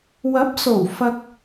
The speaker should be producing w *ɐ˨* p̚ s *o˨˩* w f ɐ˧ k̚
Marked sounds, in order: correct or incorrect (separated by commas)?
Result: incorrect, correct